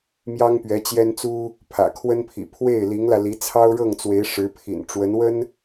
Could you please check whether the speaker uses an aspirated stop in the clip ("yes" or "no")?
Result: yes